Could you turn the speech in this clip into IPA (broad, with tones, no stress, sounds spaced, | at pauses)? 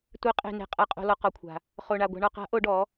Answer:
tʷ e˩˧ qʼ e̤˩ n e̤˩ qʼ a˩ qʼ o̤˩ l ɔ˩ q ɔ˩ kʷʰ a̤˩ | χ o˩ ɳ a˩ ɡʷ a̤˩ ɳ ɔ˩ q a̤˩˧ ʔ o˩˧ ɖ ɔ˩˧